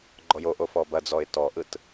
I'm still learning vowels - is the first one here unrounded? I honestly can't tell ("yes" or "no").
no